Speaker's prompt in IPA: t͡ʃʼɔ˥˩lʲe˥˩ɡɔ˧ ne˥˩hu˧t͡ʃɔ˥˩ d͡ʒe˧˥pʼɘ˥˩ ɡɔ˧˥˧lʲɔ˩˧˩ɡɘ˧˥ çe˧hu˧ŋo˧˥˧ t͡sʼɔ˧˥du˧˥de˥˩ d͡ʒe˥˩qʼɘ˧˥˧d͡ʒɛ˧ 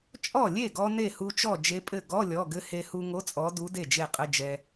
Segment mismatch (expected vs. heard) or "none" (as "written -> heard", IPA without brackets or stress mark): ç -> h